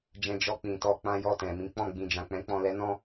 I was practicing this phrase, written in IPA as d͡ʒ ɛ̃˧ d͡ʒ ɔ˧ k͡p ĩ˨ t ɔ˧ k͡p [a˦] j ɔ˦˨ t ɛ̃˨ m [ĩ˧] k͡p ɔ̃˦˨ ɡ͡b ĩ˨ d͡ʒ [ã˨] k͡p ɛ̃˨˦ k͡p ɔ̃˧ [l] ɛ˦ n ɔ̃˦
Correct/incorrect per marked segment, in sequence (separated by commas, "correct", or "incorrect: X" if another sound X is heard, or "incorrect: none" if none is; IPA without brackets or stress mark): incorrect: ã˦, incorrect: ĩ˨˦, correct, correct